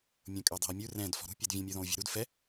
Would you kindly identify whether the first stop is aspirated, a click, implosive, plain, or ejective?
ejective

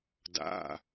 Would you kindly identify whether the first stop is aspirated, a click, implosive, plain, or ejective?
plain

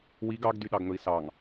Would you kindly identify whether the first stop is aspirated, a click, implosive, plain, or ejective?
plain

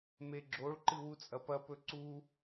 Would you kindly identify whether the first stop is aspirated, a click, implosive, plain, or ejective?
click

